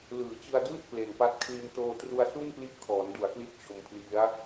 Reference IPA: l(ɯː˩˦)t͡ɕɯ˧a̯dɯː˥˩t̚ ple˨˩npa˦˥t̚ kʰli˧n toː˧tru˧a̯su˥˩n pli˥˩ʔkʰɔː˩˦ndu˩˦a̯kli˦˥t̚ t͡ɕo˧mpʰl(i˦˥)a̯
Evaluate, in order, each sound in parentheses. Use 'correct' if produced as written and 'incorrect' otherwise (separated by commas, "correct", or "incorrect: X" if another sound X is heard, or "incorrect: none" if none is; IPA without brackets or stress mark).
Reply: correct, correct